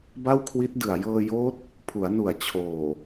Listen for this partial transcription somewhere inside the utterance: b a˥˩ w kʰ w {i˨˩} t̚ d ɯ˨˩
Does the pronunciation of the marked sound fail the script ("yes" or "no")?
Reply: yes